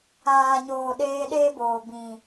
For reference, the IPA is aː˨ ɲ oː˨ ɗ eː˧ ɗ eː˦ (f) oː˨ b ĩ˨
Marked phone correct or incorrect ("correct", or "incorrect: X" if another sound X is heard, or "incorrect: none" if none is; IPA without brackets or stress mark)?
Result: incorrect: b